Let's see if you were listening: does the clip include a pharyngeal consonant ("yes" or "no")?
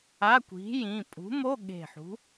yes